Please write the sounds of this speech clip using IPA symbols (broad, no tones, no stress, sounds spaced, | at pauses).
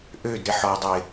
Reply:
ʔ ø d ɾ ɪ ħ ɔ dˤ ø ɪ̯